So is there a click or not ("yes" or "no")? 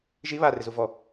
no